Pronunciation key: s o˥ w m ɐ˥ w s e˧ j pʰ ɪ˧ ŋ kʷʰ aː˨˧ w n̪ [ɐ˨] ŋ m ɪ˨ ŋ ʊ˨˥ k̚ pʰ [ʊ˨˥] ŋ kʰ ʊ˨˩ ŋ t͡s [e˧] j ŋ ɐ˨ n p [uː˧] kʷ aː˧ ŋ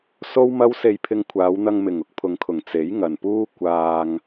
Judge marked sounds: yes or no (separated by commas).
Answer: no, no, no, no